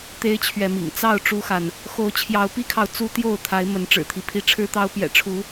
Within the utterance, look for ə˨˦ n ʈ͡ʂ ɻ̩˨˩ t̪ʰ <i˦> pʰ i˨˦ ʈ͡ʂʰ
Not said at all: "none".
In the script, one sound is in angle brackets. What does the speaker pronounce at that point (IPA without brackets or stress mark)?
i˦